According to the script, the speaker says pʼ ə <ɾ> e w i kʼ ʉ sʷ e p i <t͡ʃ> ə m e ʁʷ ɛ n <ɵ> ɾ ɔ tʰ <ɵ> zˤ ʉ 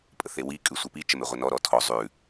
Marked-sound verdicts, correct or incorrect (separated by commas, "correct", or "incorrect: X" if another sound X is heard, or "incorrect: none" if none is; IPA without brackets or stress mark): incorrect: θ, correct, incorrect: ɔ, incorrect: ɔ